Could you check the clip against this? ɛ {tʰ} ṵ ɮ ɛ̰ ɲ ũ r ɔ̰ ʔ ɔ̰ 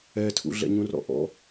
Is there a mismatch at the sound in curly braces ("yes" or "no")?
no